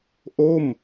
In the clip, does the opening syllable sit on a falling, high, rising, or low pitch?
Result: falling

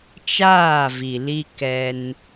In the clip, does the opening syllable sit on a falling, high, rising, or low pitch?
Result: falling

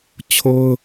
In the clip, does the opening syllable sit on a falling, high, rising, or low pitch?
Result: high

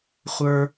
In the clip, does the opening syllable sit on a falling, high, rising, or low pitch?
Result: low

